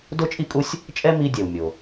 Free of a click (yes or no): yes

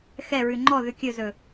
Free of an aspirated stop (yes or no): yes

